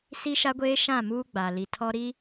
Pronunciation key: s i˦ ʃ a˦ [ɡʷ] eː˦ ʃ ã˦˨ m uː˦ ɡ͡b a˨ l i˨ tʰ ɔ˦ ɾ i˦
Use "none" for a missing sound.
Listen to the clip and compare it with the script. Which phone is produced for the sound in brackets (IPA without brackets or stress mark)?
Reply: ɡʷ